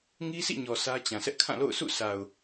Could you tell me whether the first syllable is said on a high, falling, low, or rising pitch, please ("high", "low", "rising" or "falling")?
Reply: high